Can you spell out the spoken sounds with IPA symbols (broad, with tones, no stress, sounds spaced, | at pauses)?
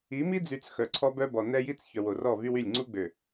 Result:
i˨˦ m i˦ d͡z y˨ t͡s x œ˨ ǀʰ ɔ˦ b œ˦ b ɔ˨ n ɛ˦ j i˦ t͡s ç œ˨ w o˨ r ɔ˦˨ v y˦ w y˦˨ lʲ ŋ͡ǀ u˦ ɡ͡b ø˨